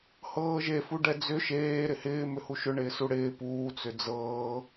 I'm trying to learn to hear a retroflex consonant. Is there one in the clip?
yes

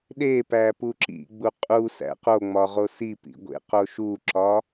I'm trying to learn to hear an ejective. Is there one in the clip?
yes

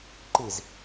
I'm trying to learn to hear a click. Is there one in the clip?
yes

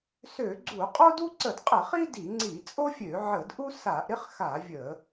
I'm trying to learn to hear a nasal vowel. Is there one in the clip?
no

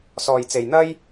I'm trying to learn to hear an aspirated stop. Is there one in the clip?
no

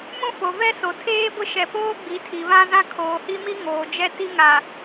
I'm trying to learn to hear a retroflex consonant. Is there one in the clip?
no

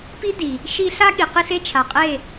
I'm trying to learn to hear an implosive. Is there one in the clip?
yes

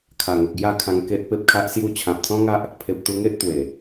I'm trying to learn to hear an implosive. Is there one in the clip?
no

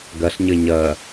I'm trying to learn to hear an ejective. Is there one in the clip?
no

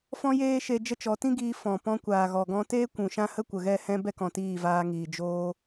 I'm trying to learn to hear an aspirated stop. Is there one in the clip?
no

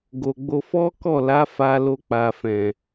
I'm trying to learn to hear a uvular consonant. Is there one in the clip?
no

